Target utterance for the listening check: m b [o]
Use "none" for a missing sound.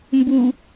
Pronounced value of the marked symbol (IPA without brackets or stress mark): u